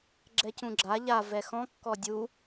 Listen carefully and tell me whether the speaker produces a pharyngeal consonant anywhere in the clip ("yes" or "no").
no